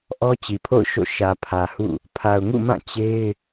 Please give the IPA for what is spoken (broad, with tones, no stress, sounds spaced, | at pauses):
ʔ ɔ˦ t͡ɕ i˨ pʰ o̰˦˨ ʊ̯ ʃ o̰˦˨ ʃ ä˨ pʰ ä˨ h ṵ˦˨ | pʰ a˨ ʊ̯ ŋ ṵ˦˨ m ã˦˨ t͡ɕ e˦ ɪ̯